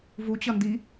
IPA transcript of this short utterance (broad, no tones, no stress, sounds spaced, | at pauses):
v u t͡ɕ ʌ n d i